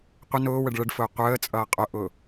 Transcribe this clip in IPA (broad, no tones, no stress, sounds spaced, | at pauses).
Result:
qʷ ə n ʊː w ə ɖ ɭ ə ɖ f ʊː qʷ əː t͡sʼ ʌː qʼ ʊ ʔ ʊ